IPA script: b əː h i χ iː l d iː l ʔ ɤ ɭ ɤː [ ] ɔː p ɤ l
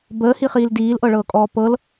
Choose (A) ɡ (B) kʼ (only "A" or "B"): B